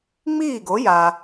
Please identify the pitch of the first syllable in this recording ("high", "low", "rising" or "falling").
falling